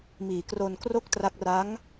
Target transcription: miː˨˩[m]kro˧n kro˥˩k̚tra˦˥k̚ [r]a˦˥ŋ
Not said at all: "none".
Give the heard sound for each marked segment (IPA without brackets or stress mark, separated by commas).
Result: none, r